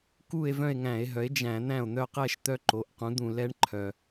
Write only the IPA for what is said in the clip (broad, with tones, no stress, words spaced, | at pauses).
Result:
ku˥˧e̯vœ̃˥˧e̯ŋæ̃˧˩˧e̯ɦœ˩˥e̯ d͡ʒæ̃˧˩˧n̪æ̃˥˩o̯n̪œ˥˧qɛ˥˧ʃ t̪œ˦˥ǃo˩˥ʔqũ˩˥d̪ũ˧˩˧l ɛ˩˥ɳǃʰœ˩